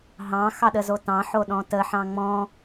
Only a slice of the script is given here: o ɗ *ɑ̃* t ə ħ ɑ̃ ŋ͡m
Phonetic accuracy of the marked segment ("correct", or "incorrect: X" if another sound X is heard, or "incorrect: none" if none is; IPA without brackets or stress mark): incorrect: ɔ̃